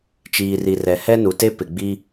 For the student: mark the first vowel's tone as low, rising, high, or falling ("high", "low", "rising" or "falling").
low